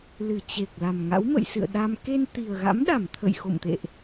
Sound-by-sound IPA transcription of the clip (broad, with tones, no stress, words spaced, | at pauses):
lɨ˧˩ t͡ɕe˨˩k̚ la˨˩mŋa̰˧˥wmə̰˧˨jsɨ̰˧˨ə̯ ɗa˧m ke˧nt̪i˨˩ə̯ɣa̰˧˥mɗa˧˩m t̪ʰə̰˧˨jxo̰˧˨mt̪ḛ˧˨ʔ